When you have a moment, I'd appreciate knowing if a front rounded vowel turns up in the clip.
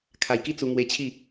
no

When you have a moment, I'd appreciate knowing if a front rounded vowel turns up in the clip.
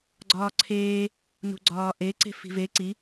no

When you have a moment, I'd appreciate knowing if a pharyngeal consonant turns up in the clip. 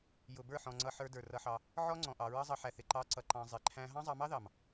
yes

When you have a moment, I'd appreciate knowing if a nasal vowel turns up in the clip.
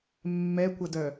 no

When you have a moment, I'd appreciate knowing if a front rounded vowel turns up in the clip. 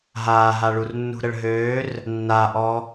yes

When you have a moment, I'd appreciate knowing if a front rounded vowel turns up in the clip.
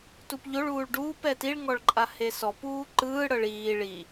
no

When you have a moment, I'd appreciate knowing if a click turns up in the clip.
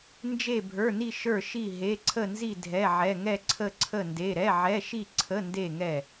yes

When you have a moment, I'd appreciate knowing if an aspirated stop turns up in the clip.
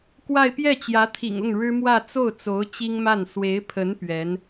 yes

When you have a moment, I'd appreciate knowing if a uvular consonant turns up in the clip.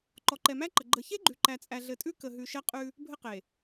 yes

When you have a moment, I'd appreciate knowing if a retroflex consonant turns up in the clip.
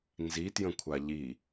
no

